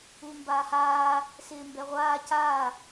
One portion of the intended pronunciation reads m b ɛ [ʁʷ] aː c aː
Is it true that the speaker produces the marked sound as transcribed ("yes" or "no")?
yes